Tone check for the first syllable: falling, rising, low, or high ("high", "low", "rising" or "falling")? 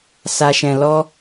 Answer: low